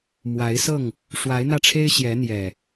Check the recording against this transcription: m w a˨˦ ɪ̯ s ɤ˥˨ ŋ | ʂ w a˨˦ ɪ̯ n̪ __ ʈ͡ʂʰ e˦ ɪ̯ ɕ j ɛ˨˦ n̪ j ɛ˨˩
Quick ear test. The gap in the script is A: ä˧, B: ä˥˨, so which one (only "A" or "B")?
A